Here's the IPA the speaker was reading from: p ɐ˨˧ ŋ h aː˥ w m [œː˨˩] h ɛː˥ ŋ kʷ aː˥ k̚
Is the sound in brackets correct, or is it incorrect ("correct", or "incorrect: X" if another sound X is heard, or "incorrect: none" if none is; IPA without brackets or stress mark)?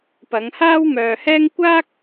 incorrect: œː˧